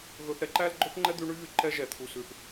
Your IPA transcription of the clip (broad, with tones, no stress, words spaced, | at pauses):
ɣɵ˧θɾɛ˧ ǃæ˦lɡ͡ǃɵ˦θŋ͡ǃɛ˦d̪y˧ ɳy˦ɣy˧ ǃɛ˦ʒɛ˨ t̪ʰu˨sʉ˨θ